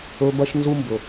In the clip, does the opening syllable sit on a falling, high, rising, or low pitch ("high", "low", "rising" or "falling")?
high